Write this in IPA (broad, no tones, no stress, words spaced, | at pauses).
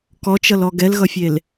kɔt͡ʃʌlɔ ɡɛlɣʌfʲel